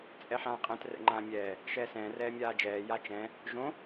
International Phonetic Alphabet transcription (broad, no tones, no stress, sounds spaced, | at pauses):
t͡sʼ ɛ ħ ãː qʼ ɛ̃ t r ɛ̰ ŋ͡ǃ ãː mʲ ɛː | ʃ ɛː s ɛ̃ː r ɛː mʲ aː d͡ʒ ɛː j a t͡ʃ ɛ̃ | ʒ õ